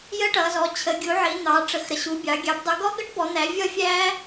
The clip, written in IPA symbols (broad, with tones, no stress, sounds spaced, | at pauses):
j ə˦˥ ʈ ʌ˩˧ z ɔ˩˧ t͡ɕʰ ə˩˧ ɡʲ u˩˧ ʕ i˩˧ n̪ ɑ˩˧ ʈ͡ʂ ə˩˧ x ɾ ə˩˧ ɕ u˩˧ bʲ ɑ˩˧ ɡʲ ɑ˩˧ b dˤ u˩˧ ɡ ɔ˦˥ ɡ ʌ˦˥ ʈ b ɔ˩˧ n̪ æ˩˧ vʲ ʌ˦˥ fʲ æ˦˥